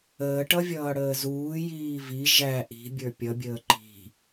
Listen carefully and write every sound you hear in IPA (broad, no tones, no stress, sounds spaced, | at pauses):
əː ʈ ʌ vʲ ʌː ɽ əː z uː j iː v i ʒ æ ʔ i̤ bʲ ə˞ pʲ ʌ bʲ əː ǃ i̤